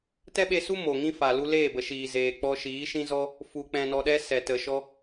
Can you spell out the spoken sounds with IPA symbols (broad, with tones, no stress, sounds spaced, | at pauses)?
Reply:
t ɛ˦ ɓ e˧ s u˦ m oː˨ ŋ ĩ˦ f a˨ l u˧ l eː˦˨ b ə˨ ʃ iː˨ z eː˨ k͡p ɔ˧ ʃ iː˨˦ ʃ ĩ˦ z ɔ˦ | f u˨ k͡p ɛ̃˨ n ɔ˨ ɗ ɛ˧ s ɛ˨ t ə˨ ʃ ɔ˧